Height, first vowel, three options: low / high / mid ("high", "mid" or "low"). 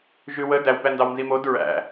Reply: high